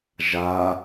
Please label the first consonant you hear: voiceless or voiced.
voiced